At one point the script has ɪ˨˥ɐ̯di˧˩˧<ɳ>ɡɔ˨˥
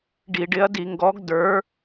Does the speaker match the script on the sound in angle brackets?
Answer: no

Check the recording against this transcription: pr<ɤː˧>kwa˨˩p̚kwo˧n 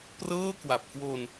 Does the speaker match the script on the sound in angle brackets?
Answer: no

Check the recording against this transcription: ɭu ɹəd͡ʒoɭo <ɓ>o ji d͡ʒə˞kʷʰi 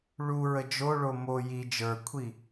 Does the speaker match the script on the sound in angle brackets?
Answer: no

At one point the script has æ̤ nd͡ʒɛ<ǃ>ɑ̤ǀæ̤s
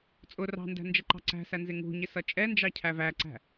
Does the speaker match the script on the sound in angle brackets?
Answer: yes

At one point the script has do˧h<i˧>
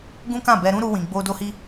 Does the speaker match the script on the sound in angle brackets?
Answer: yes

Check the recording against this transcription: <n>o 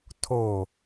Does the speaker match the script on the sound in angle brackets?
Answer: no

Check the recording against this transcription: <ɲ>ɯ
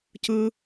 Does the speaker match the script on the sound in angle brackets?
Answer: no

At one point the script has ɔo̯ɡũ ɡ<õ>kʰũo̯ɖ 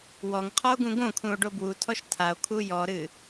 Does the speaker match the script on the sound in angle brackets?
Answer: yes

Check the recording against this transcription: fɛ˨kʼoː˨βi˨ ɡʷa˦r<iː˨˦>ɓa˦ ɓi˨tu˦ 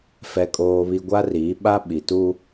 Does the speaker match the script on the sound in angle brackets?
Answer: yes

